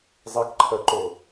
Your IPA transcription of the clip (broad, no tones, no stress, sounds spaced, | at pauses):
zˤ e k ǃʰ ɜ ǃ o